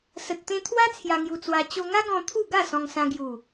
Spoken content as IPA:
s ə˨ t̚ t̪ ẽ˧ t̪ʰ w a˦ t͡sʰ j a˧ ŋ j u˧ t͡s w a˧ t͡ɕ o˧ ŋ a˦ ɡ ɔ̃˧ t̪ʰ u˥˧ ɡ a˥˧ s ɔ̃˧ ŋ s ã˧ ɡ j u˨˩

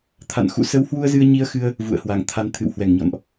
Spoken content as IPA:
t̪ʰ a̰˧˨ n x ṵ˧˨ s ə˨˦ w h w u˧ ə̯ z ɨ˧ ə̯ ɲ i˧ ə̯ x ɨ˧ ə̯ | v ṵ˧˨ ə̯ h w a˧˩ ŋ t̪ʰ a˨˦ n t̪ʰ ɨ̰˧˨ w h w ɛ˧˩ ŋ ɲ ɔ̰˧˨ n ʔ

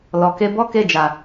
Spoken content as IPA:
l ɔ˨ k e˧ b ɔ˦ k e˦˨ d͡ʒ a˨

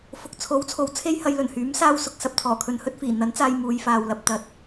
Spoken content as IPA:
f ʊ˨ k̚ t͡sʰ o˨˥ w t͡sʰ o˨ w t͡sʰ e˥ j h ɐ˧ j l ɵ˨˩ n h yː˨˥ m s aː˥ w s ʊ˨˥ k̚ s ɐ˨ p̚ t̪ʰ ɔː˨˩ kʰ ɵ˨ n h ɵ˥ t̚ f iː˨˩ n̪ ɐ˨˥ n t͡s aː˧ j m uː˨˧ j f aː˨ w l ɐ˨ p̚ t̪ ɐ˧ t̚

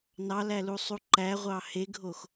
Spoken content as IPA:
n ɑ l æ l u sˤ u ǃ æ ʁʷ ɑ h e ɡʱ o x

